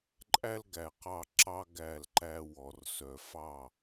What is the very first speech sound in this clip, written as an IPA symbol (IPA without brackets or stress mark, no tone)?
ǃʼ